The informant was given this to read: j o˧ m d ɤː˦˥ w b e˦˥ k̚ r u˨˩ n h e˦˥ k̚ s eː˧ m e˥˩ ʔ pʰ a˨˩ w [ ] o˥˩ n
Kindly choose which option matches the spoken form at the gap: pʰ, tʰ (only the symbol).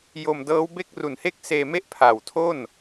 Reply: tʰ